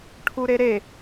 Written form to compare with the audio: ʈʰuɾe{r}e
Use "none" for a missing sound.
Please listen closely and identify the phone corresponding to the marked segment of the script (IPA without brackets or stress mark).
ɾ